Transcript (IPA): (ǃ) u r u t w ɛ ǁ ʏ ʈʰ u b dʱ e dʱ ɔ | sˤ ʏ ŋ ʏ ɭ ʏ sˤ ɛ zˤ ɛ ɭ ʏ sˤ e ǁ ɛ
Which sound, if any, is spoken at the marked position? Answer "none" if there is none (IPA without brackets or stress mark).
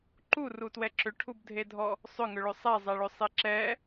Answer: ǃ